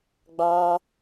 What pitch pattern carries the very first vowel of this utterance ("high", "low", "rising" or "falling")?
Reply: high